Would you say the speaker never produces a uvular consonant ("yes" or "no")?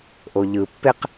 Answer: no